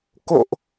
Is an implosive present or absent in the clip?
absent